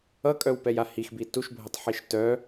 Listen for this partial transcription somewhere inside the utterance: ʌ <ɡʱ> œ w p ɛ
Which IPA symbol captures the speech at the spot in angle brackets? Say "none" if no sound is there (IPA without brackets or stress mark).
kʼ